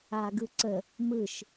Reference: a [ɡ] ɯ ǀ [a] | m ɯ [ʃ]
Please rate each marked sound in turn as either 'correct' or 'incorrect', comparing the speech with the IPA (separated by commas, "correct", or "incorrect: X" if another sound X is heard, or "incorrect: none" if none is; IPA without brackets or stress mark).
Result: correct, incorrect: ə, correct